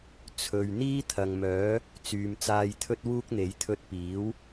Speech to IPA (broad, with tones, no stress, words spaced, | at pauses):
t͡sʰɵ˨ɥ n̪iː˥t̪ʰɐ˨ŋmœː˨˥ | t͡syː˨mt͡saː˧jt̪ʰɵ˥t̚wuː˥k̚ n̪e˨˥jt̪ʰɵ˧t̚piː˨˥w